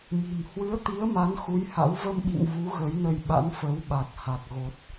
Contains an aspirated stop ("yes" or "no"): no